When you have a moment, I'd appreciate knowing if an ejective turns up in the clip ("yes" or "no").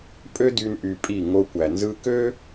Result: yes